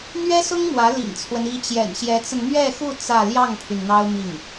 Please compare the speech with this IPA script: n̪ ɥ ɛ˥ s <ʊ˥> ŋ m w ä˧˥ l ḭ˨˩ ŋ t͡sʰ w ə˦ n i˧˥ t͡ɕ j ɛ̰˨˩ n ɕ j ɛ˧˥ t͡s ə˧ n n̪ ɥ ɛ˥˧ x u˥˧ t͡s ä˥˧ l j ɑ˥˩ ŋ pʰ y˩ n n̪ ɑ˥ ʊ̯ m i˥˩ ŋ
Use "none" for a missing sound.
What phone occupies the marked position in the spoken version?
ʊ˥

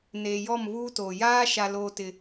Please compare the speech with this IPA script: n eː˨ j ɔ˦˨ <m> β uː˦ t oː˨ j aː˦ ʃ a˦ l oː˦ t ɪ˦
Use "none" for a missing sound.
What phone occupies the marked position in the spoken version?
m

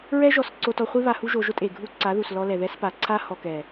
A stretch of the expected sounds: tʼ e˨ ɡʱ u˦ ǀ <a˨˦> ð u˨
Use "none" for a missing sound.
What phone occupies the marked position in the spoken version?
a˨˦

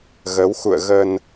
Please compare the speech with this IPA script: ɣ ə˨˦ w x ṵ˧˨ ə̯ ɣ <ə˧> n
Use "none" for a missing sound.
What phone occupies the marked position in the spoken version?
ə˧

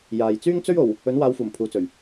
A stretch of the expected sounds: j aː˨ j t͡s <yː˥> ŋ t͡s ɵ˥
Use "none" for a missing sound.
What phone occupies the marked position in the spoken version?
yː˥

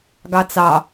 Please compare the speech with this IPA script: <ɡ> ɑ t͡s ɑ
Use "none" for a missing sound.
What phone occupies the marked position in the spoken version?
ɡ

